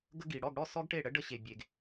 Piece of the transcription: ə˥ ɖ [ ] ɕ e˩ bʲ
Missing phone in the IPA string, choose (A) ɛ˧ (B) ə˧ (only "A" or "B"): B